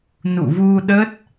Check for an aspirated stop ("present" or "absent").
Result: absent